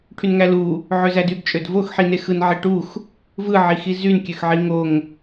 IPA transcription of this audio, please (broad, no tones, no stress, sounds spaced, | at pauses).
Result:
ʈʰ y n ŋ æ l u | ʕ ø z æ d y ɡ t͡ʃʼ ø d v o x ħ i n e x ɯ n ʕ e ʈ u x | v ɯ ʕ i x i z y n kʲ ø x ʕ i ŋ o ŋ